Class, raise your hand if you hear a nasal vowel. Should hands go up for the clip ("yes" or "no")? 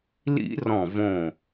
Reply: yes